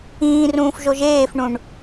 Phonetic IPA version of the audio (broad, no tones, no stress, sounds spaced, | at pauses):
ĩː r ũː f ʒ o ʒ eː f ɳ ũ ɳ